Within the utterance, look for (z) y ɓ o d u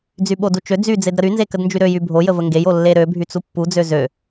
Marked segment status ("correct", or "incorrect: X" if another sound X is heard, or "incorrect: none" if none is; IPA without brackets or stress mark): incorrect: d͡z